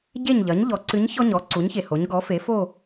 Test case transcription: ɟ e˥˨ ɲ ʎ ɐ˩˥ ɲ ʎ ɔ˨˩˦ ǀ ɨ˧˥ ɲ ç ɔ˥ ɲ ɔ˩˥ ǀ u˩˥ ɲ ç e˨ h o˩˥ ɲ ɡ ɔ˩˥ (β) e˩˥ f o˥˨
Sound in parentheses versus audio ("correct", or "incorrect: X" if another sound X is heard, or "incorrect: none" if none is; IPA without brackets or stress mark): incorrect: f